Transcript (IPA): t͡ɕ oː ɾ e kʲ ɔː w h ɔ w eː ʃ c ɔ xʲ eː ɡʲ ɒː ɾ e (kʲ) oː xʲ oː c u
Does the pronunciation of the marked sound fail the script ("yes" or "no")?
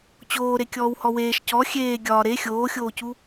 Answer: yes